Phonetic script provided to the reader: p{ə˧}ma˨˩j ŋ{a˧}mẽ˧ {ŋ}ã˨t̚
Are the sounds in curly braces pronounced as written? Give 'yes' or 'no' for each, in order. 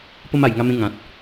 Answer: yes, yes, yes

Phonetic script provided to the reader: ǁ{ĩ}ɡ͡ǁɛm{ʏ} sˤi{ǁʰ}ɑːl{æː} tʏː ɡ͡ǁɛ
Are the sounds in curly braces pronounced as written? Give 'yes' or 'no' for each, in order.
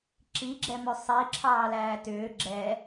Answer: no, yes, yes, yes

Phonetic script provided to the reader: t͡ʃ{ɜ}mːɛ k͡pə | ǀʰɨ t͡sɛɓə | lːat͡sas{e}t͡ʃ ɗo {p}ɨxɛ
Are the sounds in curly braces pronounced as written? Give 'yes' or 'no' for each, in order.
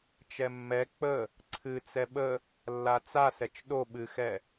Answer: no, no, no

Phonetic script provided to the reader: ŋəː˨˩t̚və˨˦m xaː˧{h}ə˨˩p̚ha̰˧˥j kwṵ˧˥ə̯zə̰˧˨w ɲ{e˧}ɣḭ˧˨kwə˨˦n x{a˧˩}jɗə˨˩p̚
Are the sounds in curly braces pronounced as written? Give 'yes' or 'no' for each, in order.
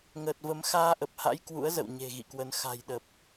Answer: no, no, no

